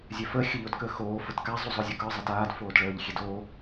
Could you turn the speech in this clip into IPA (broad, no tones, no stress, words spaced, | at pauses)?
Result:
zʲɛfə xʲəʎodkəːxoː fətka zˤuzˤozʲokə˞ zˤataːd foːdɭəːʎ xʲedoː